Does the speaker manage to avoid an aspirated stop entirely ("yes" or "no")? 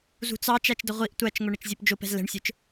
yes